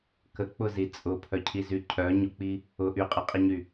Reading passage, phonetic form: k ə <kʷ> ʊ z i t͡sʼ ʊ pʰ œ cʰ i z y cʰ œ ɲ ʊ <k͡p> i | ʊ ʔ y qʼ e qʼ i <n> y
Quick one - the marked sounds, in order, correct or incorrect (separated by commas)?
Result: incorrect, correct, incorrect